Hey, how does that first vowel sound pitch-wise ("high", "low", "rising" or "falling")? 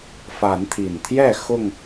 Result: rising